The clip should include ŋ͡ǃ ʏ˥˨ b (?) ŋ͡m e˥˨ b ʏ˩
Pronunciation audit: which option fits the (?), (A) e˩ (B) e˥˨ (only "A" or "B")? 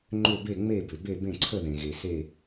B